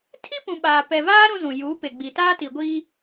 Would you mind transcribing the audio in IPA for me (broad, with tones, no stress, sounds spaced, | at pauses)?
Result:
tʰ i˦ p ũ˨ ɓ aː˨ p ɛ˨ v aː˦ ɾ ũ˦ z ũ˨ j uː˨˦ p e˨ ɡ͡b i˨ t aː˦ t i˨ ɡʷ i˦